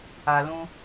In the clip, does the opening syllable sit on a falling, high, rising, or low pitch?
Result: low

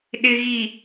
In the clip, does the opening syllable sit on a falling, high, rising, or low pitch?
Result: low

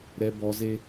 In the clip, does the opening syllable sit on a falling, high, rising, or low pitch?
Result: low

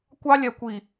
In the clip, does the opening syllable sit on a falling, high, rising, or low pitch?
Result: high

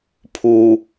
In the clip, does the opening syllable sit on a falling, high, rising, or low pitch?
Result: low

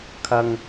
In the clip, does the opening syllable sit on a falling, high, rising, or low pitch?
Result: low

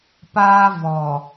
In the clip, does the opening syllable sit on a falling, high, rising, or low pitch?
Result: high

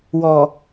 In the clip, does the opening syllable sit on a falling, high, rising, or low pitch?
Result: low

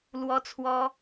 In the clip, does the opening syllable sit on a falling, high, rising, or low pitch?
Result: high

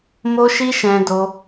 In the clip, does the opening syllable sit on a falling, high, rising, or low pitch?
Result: high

